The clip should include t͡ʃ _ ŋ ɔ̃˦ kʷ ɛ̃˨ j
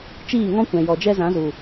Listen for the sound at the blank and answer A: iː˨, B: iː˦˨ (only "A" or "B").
B